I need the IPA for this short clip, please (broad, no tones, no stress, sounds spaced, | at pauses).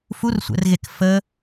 f u r sʷ ɛ̰ r ɣ e k f ə